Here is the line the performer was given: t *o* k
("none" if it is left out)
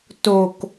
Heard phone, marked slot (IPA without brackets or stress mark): o